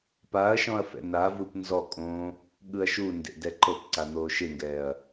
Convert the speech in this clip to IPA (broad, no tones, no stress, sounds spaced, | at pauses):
p a ɐ̯ ʃ ɔ̃ ɐ̯ f ɛ̰ n a v ɯ p n z ɔ kʼ õː | ɠ ɯ ɐ̯ ʃ u n d ḛ d ɛ ǃ ɤ p ǀ a n̪ oː ʃ e ŋ ɡ ɛː ɐ̯